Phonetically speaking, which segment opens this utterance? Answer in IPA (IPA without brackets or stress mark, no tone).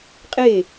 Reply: qʼ